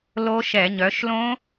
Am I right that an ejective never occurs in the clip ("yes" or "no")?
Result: yes